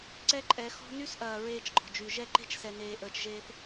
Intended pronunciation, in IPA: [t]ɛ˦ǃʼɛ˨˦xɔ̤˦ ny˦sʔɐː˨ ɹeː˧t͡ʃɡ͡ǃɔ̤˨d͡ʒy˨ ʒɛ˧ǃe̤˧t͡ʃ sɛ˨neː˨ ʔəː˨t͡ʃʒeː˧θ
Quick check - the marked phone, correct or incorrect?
incorrect